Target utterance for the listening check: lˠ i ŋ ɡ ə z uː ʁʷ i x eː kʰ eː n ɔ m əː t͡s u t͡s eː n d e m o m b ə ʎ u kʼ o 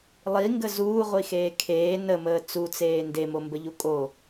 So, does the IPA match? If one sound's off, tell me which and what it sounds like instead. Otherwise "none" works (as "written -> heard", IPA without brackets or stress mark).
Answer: ɔ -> ə